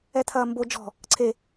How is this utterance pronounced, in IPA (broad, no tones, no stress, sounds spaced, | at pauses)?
ɛ t̪ʰ ɐː m b o d͡ʒ ɔ̤ | ǀʰ e